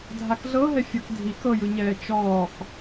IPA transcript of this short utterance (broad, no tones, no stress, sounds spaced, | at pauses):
dʱ a k ɮ ɤ ɦ ɛ fʲ ɔ k dʱ i k ɤ j ɯ ɲ ɛː t͡ʃ ɔː k